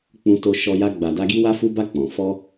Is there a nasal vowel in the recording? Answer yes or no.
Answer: yes